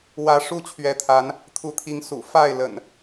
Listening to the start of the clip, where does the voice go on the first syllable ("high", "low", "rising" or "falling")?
rising